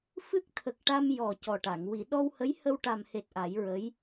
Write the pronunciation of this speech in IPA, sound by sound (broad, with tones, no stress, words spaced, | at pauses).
fɨ˦˥k̚t̪ʰə˨˩k̚ʈa˧m jɔ˨˩ cɔ˨˩ʈa˨˩˨ŋ wi˨˩˨ ɗɔ˧whə˧˥j hə˧wʈa˨˩mhe˨˩t̚ ʔa˨˩˦jɹə˧˥j